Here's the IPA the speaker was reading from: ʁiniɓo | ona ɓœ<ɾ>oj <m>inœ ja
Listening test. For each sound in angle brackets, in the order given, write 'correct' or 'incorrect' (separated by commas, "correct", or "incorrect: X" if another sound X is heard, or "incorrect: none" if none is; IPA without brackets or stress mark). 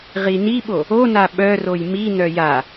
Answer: incorrect: r, correct